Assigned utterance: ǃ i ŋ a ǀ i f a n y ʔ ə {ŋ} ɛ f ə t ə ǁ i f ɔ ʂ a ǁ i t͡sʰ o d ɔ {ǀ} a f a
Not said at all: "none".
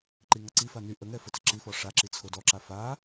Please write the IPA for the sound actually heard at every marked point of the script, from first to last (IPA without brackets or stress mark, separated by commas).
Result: ŋ, ǁ